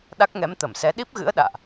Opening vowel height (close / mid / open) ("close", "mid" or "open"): open